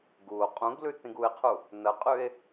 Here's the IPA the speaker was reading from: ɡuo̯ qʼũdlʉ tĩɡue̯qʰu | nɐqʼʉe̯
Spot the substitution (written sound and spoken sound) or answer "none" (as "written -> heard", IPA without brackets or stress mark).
d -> ɡ